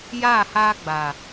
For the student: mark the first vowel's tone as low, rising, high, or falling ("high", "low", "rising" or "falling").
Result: falling